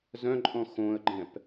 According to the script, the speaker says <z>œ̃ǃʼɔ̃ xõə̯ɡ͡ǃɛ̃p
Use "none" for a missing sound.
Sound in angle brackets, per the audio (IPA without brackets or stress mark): z